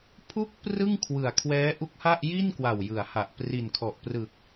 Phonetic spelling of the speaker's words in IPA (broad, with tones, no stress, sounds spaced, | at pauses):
pʰ u˥˩ k̚ p r ɯ˥˩ ŋ kʰ w ɯ˨˩ a̯ kʰ w ɛː˦˥ ʔ u˦˥ k̚ h a˥˩ ʔ j i˥˩ n k w a˨˩ w j ɯ˩˦ a̯ h a˨˩ ʔ p r i˨˩ n kʰ ɔ˨˩ ʔ p r ɯ˨˩ k̚